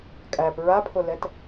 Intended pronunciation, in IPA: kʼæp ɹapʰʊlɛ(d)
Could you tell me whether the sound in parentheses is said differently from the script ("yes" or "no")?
yes